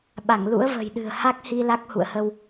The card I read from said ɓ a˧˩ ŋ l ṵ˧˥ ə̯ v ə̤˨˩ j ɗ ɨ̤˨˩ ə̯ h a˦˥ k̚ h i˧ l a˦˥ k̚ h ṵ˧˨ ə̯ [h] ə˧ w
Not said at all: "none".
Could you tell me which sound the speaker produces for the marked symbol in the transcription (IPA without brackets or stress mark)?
h